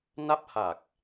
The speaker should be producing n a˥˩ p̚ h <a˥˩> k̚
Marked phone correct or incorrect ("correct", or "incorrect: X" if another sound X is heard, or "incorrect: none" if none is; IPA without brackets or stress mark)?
incorrect: a˨˩